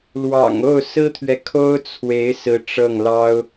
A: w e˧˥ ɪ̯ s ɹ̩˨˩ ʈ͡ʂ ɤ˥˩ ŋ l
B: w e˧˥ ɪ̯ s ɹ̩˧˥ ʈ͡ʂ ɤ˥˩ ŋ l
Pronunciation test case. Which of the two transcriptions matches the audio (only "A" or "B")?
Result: B